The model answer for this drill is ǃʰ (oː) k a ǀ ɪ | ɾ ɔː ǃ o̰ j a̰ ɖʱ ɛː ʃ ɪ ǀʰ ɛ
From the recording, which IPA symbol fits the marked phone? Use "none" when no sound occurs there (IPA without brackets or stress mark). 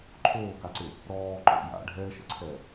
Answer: oː